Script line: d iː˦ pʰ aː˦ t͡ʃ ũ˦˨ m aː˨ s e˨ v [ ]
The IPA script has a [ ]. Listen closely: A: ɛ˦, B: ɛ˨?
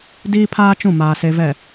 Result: B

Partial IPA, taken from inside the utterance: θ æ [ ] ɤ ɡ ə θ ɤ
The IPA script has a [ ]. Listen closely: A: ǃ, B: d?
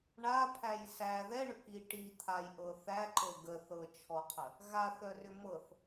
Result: A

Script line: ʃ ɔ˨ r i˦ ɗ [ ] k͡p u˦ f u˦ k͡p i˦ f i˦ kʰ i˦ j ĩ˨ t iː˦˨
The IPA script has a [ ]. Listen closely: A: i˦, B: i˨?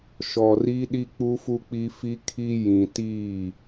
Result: A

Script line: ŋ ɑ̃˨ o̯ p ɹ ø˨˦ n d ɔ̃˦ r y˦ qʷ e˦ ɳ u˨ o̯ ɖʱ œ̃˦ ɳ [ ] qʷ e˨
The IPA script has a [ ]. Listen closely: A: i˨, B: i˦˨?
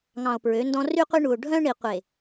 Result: A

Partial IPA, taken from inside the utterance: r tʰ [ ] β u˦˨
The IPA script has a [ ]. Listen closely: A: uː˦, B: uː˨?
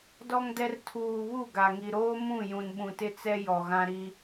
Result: B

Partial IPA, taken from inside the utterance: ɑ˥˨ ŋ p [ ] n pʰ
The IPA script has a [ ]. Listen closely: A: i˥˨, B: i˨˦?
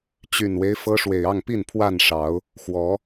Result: A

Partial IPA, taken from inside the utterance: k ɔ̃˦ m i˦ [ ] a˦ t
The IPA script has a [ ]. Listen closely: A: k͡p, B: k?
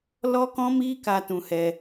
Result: B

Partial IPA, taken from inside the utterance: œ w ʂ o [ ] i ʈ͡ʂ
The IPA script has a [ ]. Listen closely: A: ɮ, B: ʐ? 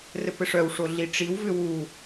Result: A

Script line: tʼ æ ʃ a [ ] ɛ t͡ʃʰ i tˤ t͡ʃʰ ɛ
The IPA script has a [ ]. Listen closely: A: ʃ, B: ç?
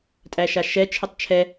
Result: A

